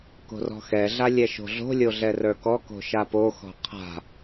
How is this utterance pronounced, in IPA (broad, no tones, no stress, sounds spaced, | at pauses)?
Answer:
k o̤ r ɔ̤ x ɛ ɮ a lʲ ɛ ʃ o̤ ɮ o̤ lʲ o ɮ ɛ r ə˞ k ɔ k o̤ ʃ a p o x ɔ̤ qʰ a̤